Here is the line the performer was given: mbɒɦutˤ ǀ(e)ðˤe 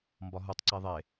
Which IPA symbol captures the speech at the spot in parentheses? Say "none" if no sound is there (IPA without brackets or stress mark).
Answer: e